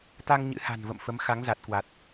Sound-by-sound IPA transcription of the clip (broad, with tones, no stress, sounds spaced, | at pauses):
t̪ a˧ ŋ ɲ ɨ̰˧˥ h a̤˨˩ n v ə̰˧˨ m f ə˨˦ m x a˨˦ ŋ z a˨˩ t̚ k w a˨˩ t̚